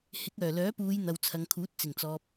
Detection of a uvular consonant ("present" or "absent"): absent